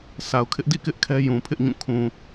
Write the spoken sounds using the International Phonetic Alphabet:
sʰa˨ʊ̯kʰɪ˦ʔdḭ˦˨kɪ˦ʔ kʰɛ˦jũ˨pʰɪ˦ʔɲũ˦˨ kʰũ˨

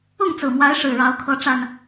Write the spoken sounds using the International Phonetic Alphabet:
ʊ˥˨ŋt͡sɹ̩˨˩mwa˨˦ɪ̯ ʂɻ̩˨˩ɻɑ˨˦ʊ̯kʰɤ˨˦ ʈ͡ʂa˨˩n

